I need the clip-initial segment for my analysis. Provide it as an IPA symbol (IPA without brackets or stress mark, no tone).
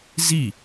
z